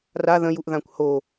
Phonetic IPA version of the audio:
r a ð ə̃ j u ʔ ð ã kʷ h o

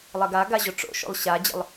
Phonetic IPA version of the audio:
lˠ ɐ ɡ a ɡ a ʑ o ʈ͡ʂ o̰ ʃ o̰ lˠ ɕ a d͡ʑ ə̰ lˠ

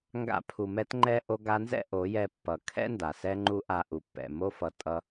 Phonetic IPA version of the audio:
ŋ ɡ a̰˧ pʰ u˨ m ɛ˧ t ŋ͡ǃ ɛ˧ ʔ o˧ ɡ a˧ n z ɛ̰˦ ʔ o˨˦ j ɛ˧ pː ʌ˨ kʰ ɛ̰˦ n d a˨ s ɛ˧ ŋ͡ǃ u˧ ʔ a˧ ʔ u˨ pː ɛ̰˨ m o˦ f ʌ˧ tʼ ʌ˧

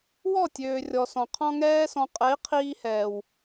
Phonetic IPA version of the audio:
w ɔ˦˨ tʲ øː˨ rʲ ɔ˨ s ɔ̃˨ qʰ ɔ̃˦ ŋ ɛː˦ s ɔ̃˧ qʼ ɛ˨˦ i̯ qʰ iː˧ h ɛː˨ w

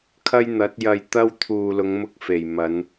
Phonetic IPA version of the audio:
kʰ ɐ˥ j n̪ ɐ˨˥ t̚ j ɐ˧ j t̪ ɐ˥ w t̪ʰ uː˨ l ʊ˨˧ ŋ m ʊ˧ k̚ f e˨˩ j m ɐ˨˧ n

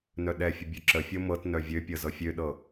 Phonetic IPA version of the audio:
n œ ɗ ɛ fʲ ə bʲ œ ǁ ə fʲ ɤ m ɤ t n œ vʲ ø pʲ ɤ z ɤ fʲ ø ɗ ɤ

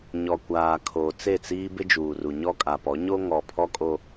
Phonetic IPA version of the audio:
ɲ ɔ˨ kʷ aː˨ kʰ o˨ t͡s e˦˨ t͡s iː˦ b ɪ˦ d͡ʒ uː˨ r u˨ ɲ ɔ˦ kʼ a˨ p ɔ˨˦ ɲ o˦ ŋ ɔ˨ pʰ ɔ˦ kʼ o˦

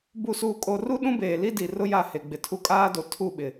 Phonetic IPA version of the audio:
b u˨ s uː˨ kʼ o˨ r u˦ ɗ ũ˦ b eː˨ l i˦ d i˨ r ʊ˦ j a˦˨ h e˨ ɡ͡b ɪ˨ tʰ u˦ kʼ aː˦ d o˨ tʰ u˦˨ ɓ ɪ˨

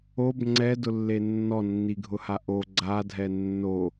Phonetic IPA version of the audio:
o b ŋ͡ǀ ɛ d ʊ lː e nː ɔ nː i ɡʱ ʊ h a ʔ o ɡ͡ǀ a dʱ ɛ nː o

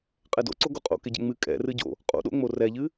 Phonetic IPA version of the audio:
qʼ ɛ d o̰ ǀ o ɡ o qʼ o̰ k ɪ ɟ ɛ̰ ŋ͡m ɨ kʼ ɛ̰ r ɨ ɟ o̰ | qʼ o̰ ɗ o̰ ŋ͡m o r ɛ ʎ ɨ

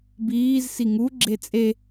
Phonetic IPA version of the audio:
b iː z s i ŋ u ɡ͡ǁ e t͡sʼ e

